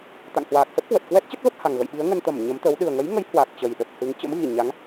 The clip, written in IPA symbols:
t̪ a̰˧˨ ŋ h w aː˨˩ k̚ s ə˦˥ p̚ k w ə˨˩ t̚ k w ɛ˦˥ t̚ t͡ɕ ə˦˥ t̚ v ə˦˥ p̚ h a˨˩ ŋ ɣ ə̰˧˨ j ɓ i˨˦ ə̯ ŋ ə˧ n t̪ ə˧˩ m ɲ ə˨˦ m t̪ ə˨˦ w ɗ ɨ˨˩ ə̯ ŋ ə˨˦ j ŋ ə˨˦ j h w a˨˩ k̚ t͡ɕ ə˨˩ j ɗ ə˨˩ p̚ h ɨ˨˦ ŋ t͡ɕ ə̰˧˥ m ɣ i˧˩ ɲ a˨˦ ŋ

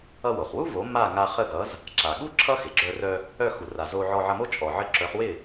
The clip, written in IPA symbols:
ʌ˧ w o˩ χ w u˥ v o˩˥ m a˥˩ ŋ a˧ χ ə˥˩ ɡ ʌ˩˥ z | ǁ a˩ ɠ u˥ ǁʰ ʌ˥ x ɪ˩ ɡ͡ǁ œ˧ r œ˧ | œ˥˩ x u˩ r a˩ z o˧ ʕ ɔ˧ ʕ ʌ˧ m o˥ t͡ʃʼ ɔ˩ ʕ ə˧ ǁ œ˩˥ χ w ɪ˥˩

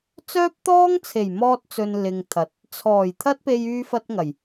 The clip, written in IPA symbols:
t͡s œː˥ p̚ t̪ ɔː˥ ŋ t͡sʰ e˨˩ j m ɔː˧ t̚ t͡s ɵ˨ n l ɪ˨ ŋ t̪ʰ ɐ˨˥ t̚ | t͡sʰ ɔː˨˩ j t̪ʰ ɐ˥ t̚ p e˧ j yː˥ f ɐ˥ t̚ ŋ ɐ˨˩ j

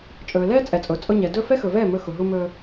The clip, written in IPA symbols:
t͡ʃʼ ɵː˨ l ɛː˦ t͡sʼ ɛ˨ t͡sʼ ʊː˨ t͡sʼ ʊ˧ ɲ ɛ˨ d ɵ˦˨ f ɛ˦ x ɵ˨ v ɛː˦˨ m ɵ˧ x ʊ˨ ɦ u˧ m ɵː˧

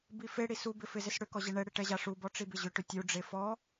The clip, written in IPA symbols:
b i f e ɽ i s u b ɪ f ɪ z ɪ s ɽ ʏ k ɔ ʑ e ɳ ɛ ɽ ɪ ʈ ɛ ʑ a ʂ u b ɔ ʈ͡ʂ i b ɪ ʑ ʏ ʈ ʏ tʲ u ɖ͡ʐ e f ɔ

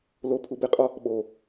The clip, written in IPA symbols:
l o pʰ u b e qʼ ɒ | ɓ o

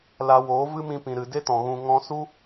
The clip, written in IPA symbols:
l a˧ w oː˨˦ v ɨ˦ m ĩ˧ p ĩ˨ ɾ ɨ˨ d e˦ t ɔ̃˨ ɣ ũ˧ ŋ ɔ̃˧ s u˦

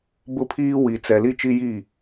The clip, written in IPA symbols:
b ʊ˦ pʰ iː˦ w i˨ t͡s ɛ˨ l i˦ t͡ʃ i˦ j i˦˨

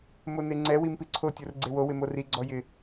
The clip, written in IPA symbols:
m o n e ŋ͡ǀ ɛ w i m p i ǀʰ o tʲ o r ɡ͡ǀ e w o w ɪ m o r i ɡ͡ǀ ɔ j ɪ

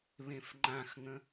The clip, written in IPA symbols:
β ẽ f ŋ͡ǃ ã x ŋ ə̃

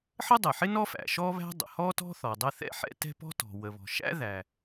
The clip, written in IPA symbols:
ħ ə˥ dˤ ɛ˩ ħ ɪ˥ n ɔ˥ f æ̰˩ ʃ ɔ˥ β æ̤˥ dˤ ə̰˩ h ɔ˥ t ɔ̤˥ θ ɔ˩ dˤ ə˥ θ ɛ̰˥ ħ ɛ̰˥ t ɛ̤˥ p ɔ̤˥ t ɔ̤˩ w ə˩ β ɔ̤˩ ʃ æ̰˥ ð æ˩

